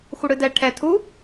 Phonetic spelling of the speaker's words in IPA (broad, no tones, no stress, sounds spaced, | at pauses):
xʷ ɘ ɽ ɨ d ɛ ʈʰ ɛ tʰ u